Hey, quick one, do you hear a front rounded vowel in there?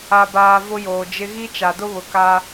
no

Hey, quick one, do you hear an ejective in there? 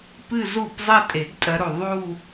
yes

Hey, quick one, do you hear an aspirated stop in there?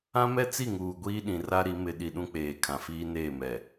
yes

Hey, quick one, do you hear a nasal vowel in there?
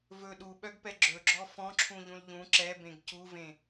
yes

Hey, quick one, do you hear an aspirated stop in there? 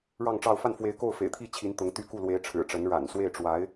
yes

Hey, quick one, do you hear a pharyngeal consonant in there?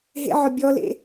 yes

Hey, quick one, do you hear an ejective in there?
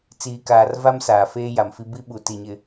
no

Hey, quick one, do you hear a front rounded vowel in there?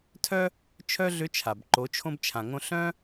yes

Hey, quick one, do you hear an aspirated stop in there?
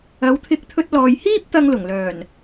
yes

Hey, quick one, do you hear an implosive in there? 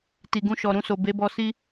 no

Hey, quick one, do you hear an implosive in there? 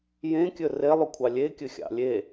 no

